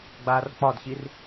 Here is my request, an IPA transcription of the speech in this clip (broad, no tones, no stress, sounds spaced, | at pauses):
ɡ͡b aː r k͡p ɒ d ɕ i r